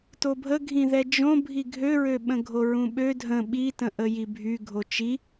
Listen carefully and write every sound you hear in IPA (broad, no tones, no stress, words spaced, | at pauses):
tobʱəɡʱĩðɛ d͡ʒõ bʱiɡʱøɹøɓə̃ ɡʱoɹũɓø dʱə̃ ɓitə̃ ʔəjibʱy ɡʱot͡ʃi